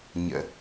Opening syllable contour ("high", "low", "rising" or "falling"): low